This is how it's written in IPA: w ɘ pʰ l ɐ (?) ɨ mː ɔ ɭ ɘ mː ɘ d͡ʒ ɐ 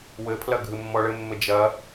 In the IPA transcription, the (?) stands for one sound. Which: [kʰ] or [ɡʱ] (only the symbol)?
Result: ɡʱ